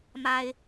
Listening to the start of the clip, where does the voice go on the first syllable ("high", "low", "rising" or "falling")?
high